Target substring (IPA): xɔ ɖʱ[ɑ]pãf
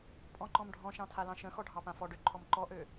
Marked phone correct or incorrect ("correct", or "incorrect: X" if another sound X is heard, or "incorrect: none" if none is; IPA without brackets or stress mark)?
correct